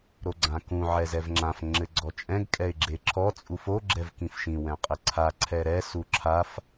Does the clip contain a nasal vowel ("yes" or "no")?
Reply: yes